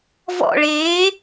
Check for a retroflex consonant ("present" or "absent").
present